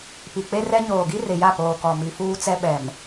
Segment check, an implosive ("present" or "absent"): present